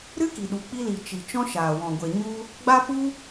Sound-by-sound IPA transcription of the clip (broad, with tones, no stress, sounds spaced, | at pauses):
ɾ ɨ˦ k i˨ ɗ u˨ k͡p i˧ l i˨ t͡ʃ i˨ t͡ʃ ɔ̃˦ ʃ aː˨ w ɔ̃˨ ɡʷ e˨ ɲ u˦ | ɡ͡b a˦ p u˦